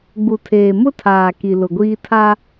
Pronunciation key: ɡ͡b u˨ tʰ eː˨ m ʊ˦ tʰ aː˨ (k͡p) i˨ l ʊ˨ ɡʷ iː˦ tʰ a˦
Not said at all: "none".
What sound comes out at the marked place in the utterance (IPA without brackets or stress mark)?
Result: k